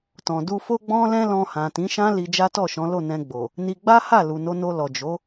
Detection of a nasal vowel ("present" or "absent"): present